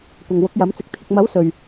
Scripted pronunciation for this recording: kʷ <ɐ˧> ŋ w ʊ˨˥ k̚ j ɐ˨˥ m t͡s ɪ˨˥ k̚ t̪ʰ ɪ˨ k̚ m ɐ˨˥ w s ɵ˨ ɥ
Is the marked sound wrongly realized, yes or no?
yes